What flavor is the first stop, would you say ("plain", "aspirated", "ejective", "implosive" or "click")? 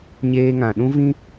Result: implosive